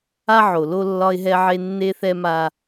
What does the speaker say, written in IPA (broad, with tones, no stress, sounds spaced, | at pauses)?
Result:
a˦ ʕ o˨ l o˦ lː ɒ˦ ɪ̯ ɦ ɛ˦ ʕ e˦ nː e˦ θ ɛ˦ m a˦